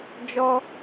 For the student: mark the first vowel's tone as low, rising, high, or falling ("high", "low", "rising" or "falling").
high